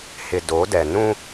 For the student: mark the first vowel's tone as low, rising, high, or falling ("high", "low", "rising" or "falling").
low